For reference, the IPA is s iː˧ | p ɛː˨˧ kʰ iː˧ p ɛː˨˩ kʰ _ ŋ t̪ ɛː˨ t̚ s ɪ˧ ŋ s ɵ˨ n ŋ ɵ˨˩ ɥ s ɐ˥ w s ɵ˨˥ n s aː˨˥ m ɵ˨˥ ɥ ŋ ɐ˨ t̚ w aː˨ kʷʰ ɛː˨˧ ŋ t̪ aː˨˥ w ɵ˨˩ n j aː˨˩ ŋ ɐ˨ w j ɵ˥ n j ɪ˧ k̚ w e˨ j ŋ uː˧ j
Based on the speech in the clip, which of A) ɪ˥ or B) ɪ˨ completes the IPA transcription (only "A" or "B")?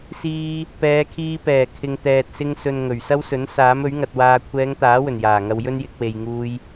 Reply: B